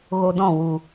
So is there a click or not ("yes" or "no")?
no